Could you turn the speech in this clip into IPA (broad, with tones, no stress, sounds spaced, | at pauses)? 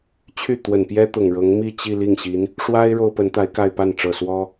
t͡ɕʰ y˥˩ t̪ w ə˨˩ n p j ɛ˥ t̪ ʊ˨˩ ŋ ɻ ɤ˧˥ ŋ m i˥˧ t͡ɕ i˥˧ l i˥˩ ŋ ɕ i˧˥ n | ʂ w a˥ ɪ̯ ɻ o˥ ʊ̯ p ə˧˥ n t̪ a˧˥ ɪ̯ k a˥˧ ɪ̯ p a˥˩ n ʈ͡ʂ ɤ˨˩ s w ɔ˥